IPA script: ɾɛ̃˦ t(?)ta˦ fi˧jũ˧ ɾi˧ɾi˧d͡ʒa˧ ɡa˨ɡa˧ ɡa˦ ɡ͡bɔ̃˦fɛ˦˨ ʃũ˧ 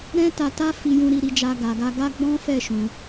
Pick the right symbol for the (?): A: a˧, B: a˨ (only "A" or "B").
A